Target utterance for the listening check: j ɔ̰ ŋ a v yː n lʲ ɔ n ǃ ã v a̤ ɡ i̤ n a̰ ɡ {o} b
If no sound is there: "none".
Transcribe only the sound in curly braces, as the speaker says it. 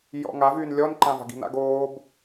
oː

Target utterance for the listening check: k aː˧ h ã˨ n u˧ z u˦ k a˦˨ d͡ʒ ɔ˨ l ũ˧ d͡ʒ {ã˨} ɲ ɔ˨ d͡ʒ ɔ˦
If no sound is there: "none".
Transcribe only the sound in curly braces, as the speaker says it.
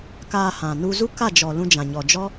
ã˨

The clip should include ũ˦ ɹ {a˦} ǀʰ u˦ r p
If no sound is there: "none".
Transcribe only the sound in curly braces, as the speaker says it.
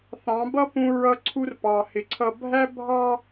ʌ˦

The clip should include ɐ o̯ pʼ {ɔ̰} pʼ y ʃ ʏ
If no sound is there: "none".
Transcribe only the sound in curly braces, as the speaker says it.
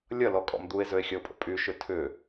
ə̰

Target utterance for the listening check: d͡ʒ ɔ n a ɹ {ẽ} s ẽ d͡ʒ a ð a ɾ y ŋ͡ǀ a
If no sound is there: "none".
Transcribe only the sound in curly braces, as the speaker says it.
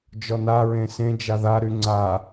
ẽ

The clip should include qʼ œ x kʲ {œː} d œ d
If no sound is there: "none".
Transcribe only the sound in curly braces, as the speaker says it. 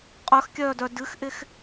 œː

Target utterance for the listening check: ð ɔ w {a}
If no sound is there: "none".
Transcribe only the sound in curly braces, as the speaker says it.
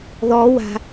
a̤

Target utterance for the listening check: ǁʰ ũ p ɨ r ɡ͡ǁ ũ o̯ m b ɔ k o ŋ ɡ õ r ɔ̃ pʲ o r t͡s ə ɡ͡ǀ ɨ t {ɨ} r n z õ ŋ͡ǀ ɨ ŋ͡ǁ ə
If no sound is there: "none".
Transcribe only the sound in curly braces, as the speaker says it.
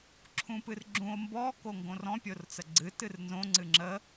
ɨ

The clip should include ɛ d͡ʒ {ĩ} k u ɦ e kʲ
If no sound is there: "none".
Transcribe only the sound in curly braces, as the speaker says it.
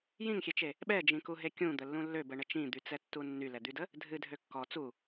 ĩ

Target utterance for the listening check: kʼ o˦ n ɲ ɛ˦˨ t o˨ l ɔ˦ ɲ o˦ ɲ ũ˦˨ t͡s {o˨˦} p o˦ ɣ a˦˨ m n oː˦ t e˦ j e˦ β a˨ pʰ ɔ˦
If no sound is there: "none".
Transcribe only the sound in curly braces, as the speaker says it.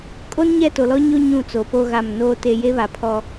o˨˦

